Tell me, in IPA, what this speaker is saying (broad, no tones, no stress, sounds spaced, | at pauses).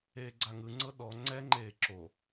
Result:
eː ɡ͡ǀ a ŋ ɯ ŋ͡ǀ ɤ ɗ ɔ ŋ͡ǀ ɛ ŋ͡ǃ eː ǁ o